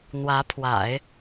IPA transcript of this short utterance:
n̪wä˧˥pʰwa̰˨˩˦ɪ̯

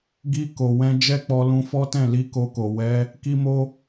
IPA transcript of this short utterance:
ɡi˧ko˨wɛ̃˧ d͡ʒɛ˦k͡pɔ˧lũ˧fɔ˦ tɛ̃˦˨li˧ ko˧ko˨ wɛ˨˦ | ki˦mo˦

